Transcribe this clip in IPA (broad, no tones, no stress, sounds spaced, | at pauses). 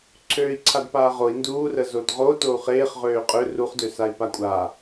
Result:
ǀʰ øː i̯ ǀʰ a d p aː ʁ o i̯ n d uː r ə z o d ʁ o t o u̯ χ eː χ ʁ øː qʼ ø r u χ d ø s a i̯ p a kʷʼ a